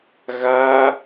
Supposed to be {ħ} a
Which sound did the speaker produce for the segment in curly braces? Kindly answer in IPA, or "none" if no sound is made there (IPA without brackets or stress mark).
ɣ